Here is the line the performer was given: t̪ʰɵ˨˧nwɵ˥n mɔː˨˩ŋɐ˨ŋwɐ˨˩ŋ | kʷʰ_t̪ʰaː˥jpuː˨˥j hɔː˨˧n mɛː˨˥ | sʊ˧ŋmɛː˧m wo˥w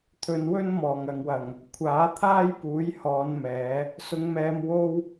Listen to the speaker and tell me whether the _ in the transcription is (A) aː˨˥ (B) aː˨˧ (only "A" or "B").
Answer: A